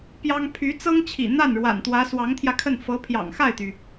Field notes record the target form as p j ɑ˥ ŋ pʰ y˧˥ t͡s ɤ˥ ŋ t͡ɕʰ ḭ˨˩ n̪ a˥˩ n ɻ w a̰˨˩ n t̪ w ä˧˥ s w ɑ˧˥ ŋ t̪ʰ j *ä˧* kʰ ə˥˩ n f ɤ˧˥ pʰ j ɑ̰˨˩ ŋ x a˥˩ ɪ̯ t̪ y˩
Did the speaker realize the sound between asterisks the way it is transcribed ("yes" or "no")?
yes